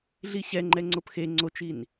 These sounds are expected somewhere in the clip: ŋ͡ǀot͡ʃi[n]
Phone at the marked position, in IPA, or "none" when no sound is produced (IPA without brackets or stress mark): n